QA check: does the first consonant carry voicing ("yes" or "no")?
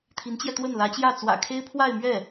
no